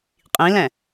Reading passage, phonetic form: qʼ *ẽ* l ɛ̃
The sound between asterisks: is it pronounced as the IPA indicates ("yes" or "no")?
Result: no